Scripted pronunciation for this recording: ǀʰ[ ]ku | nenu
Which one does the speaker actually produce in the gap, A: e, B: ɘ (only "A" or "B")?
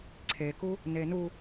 A